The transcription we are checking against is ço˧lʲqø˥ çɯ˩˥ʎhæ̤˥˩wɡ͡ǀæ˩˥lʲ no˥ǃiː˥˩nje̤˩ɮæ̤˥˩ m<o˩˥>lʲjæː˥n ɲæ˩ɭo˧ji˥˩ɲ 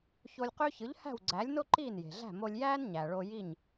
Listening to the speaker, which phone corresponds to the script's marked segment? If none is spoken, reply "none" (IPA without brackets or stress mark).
o˧